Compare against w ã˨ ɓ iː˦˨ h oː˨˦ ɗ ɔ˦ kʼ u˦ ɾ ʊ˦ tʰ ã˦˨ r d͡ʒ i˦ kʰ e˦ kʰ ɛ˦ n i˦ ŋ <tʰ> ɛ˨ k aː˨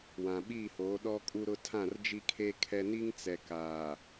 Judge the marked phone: incorrect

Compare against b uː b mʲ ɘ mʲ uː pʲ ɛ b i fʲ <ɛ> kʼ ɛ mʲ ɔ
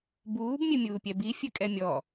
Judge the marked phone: incorrect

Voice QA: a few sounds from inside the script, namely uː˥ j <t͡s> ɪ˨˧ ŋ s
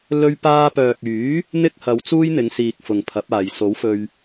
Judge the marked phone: incorrect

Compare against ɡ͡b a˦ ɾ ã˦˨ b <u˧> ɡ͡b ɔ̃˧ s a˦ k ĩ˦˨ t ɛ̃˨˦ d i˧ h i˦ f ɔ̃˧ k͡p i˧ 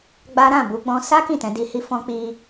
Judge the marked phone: correct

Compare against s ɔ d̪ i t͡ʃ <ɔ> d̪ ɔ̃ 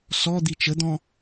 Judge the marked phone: incorrect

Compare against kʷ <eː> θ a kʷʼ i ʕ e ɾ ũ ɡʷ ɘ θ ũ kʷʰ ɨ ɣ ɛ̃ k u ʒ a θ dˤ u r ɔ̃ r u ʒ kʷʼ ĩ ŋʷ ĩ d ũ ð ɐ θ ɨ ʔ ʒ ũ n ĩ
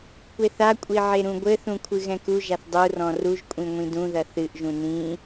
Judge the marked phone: incorrect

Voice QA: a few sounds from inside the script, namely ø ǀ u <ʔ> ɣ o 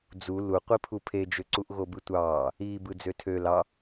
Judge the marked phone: correct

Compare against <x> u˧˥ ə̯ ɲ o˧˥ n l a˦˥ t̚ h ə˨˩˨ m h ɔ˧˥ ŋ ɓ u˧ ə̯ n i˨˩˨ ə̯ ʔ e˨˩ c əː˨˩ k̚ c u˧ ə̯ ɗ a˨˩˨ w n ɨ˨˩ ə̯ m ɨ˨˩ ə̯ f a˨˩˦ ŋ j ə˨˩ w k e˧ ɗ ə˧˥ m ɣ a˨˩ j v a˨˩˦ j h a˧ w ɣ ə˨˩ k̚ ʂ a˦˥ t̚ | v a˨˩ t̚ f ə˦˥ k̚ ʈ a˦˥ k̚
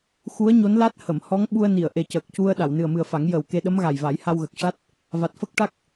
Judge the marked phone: correct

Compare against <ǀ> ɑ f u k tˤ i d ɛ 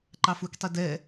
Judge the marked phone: incorrect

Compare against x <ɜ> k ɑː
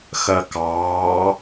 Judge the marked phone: correct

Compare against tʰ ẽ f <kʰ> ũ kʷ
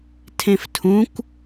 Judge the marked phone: incorrect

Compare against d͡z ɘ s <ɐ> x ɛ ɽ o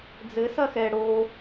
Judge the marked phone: correct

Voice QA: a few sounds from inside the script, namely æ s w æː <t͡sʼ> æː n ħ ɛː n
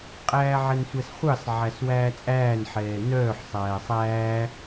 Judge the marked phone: correct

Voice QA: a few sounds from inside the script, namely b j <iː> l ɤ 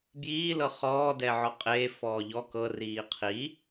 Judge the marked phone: correct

